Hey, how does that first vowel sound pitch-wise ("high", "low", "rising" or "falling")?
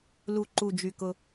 low